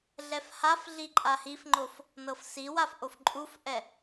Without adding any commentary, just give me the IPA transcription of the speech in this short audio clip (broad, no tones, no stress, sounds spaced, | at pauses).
ɮ ɛ f h a f ɮ i ǃʼ a h i f ŋ͡ǃ o f | n ɤ f s i w a f ʔ o f ǃʼ u f ʔ ɛ